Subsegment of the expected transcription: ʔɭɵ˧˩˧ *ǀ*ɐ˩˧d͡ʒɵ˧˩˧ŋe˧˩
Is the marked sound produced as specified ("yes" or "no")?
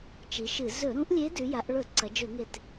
yes